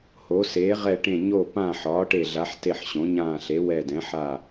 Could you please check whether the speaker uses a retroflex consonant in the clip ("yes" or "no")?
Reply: yes